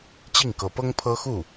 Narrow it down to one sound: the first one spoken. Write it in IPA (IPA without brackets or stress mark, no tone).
t͡ɕ